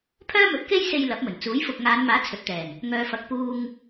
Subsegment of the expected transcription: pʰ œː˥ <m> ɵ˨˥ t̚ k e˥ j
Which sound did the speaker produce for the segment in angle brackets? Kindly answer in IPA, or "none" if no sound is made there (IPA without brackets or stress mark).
m